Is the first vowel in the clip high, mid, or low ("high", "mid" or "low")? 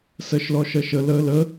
mid